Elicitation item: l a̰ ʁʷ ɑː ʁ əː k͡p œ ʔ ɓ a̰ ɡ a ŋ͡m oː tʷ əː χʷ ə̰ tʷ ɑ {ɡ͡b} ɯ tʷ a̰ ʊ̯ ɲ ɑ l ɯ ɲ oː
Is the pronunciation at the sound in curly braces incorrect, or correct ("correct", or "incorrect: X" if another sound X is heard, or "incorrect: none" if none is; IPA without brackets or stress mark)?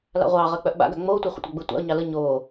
correct